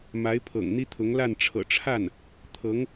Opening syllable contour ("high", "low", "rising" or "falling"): rising